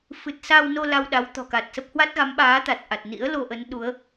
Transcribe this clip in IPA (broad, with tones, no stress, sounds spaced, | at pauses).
f ɨ˨˩ t̚ s a˧ w n o˧ l a˧ w ɗ a˨˦ w t̪ ɔ̤˨˩ k a˨˩ t̚ s ə˦˥ p̚ h w a˦˥ t̚ ɣ a˨˦ m ɓ aː˨˦ t̪ a˨˩ t̚ ʔ a˨˩ t̚ n ḭ˧˥ ə̯ l o˧ ʔ ə˨˦ n ɗ u˨˦ ə̯